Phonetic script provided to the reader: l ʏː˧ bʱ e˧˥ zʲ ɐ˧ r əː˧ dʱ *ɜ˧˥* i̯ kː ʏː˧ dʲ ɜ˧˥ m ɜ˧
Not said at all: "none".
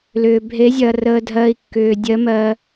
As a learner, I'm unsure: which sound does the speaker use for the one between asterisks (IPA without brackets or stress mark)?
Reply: ɜ˧